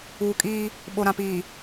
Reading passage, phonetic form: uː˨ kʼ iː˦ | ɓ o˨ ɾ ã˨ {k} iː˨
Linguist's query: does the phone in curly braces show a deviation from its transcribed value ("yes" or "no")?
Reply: yes